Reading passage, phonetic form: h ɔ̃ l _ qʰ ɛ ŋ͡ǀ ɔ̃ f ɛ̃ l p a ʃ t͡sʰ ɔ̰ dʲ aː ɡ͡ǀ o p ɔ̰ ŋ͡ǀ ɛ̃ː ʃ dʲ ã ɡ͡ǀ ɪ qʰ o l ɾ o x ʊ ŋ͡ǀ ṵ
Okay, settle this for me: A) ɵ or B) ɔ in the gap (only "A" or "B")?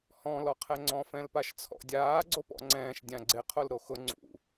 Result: B